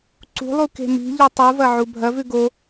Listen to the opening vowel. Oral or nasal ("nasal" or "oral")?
oral